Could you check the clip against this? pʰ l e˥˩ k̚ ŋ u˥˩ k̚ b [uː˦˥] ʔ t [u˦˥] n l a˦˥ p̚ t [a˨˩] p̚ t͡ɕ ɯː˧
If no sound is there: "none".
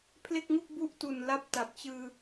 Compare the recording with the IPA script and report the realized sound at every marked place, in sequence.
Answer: u˦˥, u˨˩, a˨˩

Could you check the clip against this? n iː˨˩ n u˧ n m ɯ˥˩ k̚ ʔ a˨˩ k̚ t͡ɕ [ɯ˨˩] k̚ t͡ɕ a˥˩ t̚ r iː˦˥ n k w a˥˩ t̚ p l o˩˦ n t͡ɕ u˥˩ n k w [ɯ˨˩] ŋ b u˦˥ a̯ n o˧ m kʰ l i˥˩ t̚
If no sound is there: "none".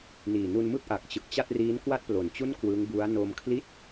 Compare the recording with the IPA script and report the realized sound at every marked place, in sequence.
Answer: ɯ˨˩, ɯ˦˥

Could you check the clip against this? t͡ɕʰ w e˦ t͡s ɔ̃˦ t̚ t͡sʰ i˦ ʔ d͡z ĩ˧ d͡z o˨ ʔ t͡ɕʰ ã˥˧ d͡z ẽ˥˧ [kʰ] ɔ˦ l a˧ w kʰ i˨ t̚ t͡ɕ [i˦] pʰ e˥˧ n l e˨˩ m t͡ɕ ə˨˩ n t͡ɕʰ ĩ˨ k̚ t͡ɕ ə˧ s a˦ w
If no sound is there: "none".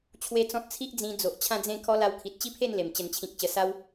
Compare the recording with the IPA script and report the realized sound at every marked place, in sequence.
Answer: kʰ, i˦

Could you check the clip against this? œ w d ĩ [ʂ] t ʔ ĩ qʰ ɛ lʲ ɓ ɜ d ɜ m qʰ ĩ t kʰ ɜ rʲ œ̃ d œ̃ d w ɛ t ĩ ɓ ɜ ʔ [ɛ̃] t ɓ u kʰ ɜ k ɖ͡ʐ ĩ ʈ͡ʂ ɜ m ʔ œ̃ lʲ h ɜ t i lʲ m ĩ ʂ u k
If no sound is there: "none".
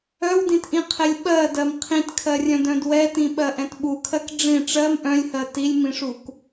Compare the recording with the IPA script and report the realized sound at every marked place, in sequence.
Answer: none, ɛ̃

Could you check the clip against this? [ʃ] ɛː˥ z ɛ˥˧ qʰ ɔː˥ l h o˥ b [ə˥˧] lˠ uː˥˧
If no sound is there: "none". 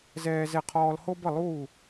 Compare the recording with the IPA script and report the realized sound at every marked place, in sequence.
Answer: z, ə˥˧

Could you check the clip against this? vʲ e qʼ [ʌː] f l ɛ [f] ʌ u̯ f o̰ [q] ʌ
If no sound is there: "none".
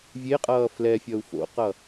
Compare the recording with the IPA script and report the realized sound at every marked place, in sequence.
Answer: ʌː, fʲ, q

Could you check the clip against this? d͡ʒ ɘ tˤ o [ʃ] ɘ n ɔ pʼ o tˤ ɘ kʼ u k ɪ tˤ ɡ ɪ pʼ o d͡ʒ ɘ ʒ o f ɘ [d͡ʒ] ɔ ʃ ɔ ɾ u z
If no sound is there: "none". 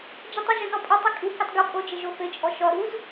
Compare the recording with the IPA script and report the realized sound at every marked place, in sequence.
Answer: ʒ, t͡ʃʼ

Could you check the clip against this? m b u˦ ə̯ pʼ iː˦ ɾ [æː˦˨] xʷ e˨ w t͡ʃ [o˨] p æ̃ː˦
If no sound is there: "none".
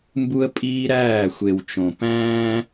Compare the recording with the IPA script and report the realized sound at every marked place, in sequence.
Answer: æː˦˨, õ˨

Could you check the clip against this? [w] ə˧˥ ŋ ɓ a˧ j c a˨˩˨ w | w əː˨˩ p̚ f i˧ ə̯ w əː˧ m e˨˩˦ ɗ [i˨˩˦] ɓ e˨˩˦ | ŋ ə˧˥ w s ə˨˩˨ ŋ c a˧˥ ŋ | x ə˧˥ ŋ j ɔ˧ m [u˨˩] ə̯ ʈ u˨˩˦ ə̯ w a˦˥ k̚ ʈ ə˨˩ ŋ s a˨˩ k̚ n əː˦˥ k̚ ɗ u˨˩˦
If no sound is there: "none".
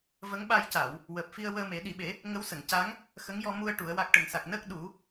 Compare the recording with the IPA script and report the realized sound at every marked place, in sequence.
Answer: v, i˨˩˦, u˧

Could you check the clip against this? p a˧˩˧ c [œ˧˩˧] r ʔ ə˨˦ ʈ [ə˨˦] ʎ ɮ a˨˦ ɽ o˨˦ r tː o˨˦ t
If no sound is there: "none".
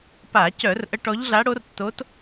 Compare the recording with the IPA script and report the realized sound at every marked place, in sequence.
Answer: œ˧˩˧, ɔ˨˦

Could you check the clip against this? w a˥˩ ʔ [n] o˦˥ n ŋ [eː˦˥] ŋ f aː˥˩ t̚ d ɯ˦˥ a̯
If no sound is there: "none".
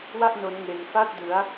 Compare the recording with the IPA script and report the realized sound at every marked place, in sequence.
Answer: n, eː˧

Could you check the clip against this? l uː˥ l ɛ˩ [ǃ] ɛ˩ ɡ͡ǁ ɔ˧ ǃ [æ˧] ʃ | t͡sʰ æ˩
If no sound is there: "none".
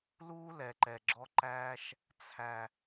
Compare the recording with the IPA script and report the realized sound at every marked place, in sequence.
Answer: ǃ, æː˧

